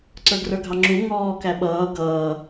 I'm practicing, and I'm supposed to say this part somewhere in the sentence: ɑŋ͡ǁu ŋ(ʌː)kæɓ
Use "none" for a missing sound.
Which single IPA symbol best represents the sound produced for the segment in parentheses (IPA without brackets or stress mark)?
ɔː